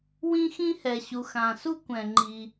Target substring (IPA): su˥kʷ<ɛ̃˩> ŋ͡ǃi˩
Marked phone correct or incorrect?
correct